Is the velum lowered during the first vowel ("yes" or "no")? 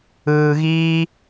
no